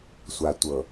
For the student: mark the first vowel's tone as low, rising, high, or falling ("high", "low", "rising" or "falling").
low